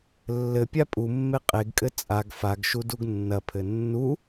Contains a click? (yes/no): no